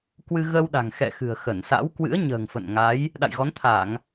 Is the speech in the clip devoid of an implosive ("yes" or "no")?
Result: no